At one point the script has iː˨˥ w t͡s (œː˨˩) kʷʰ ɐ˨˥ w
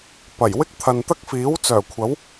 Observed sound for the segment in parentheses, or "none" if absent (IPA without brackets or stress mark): œː˨˩